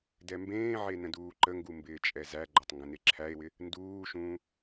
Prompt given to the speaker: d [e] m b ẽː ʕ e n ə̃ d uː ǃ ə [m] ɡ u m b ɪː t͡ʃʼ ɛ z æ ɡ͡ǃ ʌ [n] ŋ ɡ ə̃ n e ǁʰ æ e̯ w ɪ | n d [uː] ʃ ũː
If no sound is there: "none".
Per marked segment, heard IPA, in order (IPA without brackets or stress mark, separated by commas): ɛ, ŋ, tˤ, uː